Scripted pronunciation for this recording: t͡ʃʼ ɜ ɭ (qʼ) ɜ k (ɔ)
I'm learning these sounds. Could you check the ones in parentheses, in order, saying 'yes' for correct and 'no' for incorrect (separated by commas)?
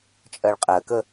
yes, no